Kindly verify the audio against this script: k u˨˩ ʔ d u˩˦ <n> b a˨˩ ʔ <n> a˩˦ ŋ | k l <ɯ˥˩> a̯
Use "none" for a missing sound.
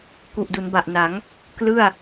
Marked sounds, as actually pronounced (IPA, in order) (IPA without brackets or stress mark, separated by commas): n, n, ɯ˥˩